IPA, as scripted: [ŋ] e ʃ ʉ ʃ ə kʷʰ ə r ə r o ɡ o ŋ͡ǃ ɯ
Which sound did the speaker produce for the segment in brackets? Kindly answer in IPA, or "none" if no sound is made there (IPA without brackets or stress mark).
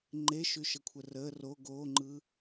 ŋ͡ǃ